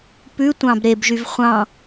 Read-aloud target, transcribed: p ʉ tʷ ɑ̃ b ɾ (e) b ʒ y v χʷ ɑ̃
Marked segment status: correct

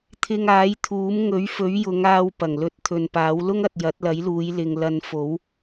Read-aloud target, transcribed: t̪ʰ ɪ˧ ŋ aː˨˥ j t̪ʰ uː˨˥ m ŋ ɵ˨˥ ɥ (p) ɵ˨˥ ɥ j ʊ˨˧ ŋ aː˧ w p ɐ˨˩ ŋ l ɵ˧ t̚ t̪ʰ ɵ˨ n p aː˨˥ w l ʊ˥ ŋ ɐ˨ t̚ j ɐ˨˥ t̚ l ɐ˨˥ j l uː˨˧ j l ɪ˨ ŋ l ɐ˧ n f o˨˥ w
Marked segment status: incorrect: f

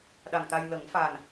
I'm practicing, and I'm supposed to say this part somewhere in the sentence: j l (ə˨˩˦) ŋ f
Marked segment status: correct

